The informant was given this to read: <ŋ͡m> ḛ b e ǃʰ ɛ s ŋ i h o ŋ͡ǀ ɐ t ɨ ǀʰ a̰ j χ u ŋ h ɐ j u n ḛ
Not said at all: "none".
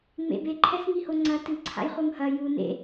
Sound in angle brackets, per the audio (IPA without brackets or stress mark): ŋ͡m